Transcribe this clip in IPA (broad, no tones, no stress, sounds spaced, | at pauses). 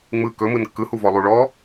ŋ͡m ɯ k ɵ m ɯ n kː ɯ h u v ɔ lˠ u ɭ ɔ